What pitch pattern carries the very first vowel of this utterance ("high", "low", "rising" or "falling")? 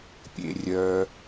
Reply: low